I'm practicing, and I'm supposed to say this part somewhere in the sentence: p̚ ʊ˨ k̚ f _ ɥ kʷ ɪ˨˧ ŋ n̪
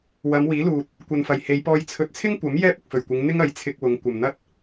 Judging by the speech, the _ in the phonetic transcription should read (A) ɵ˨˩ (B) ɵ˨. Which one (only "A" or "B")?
A